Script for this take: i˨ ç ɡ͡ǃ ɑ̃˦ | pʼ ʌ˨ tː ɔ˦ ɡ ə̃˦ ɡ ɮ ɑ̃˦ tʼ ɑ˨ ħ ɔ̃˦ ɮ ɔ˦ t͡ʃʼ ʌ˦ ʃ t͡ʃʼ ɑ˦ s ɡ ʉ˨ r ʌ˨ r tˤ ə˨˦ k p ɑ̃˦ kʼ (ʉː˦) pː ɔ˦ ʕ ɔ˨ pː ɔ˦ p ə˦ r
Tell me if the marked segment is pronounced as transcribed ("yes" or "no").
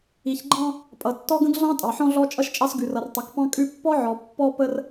no